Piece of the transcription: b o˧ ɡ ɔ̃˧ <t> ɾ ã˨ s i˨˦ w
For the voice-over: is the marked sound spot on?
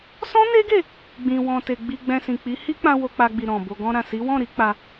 no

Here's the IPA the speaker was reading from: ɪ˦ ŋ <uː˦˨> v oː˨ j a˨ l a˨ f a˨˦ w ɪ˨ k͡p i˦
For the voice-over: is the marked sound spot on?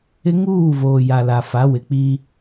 yes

